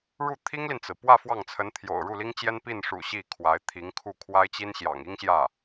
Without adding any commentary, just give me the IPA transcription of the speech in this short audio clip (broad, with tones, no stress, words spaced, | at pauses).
ɻu˥˩t̪ʰi˥ŋli˨nt͡sɹ̩˩ pwä˥˧ fwɑ˥˩ŋt͡sʰə˧˥n t̪ʰjo̰˨˩ʊ̯ɻu˥˩li˥ŋt͡ɕjɛ˥n pi˥˩nʂṵ˨˩ ɕi˥˩kʰwa˧˥ɪ̯t̪ʰi˧˥ŋkʰu˥˩ kʰwa˥ɪ̯t͡ɕi˥nɕjɑ̰˨˩ŋ i˥ŋɕjä˥˩